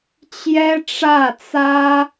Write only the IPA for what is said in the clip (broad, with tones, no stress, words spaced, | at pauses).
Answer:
t͡ɕjɛ˥ʈ͡ʂä˥˩t͡sä˥